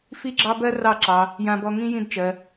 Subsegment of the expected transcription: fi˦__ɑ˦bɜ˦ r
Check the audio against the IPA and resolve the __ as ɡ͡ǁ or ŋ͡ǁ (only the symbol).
ɡ͡ǁ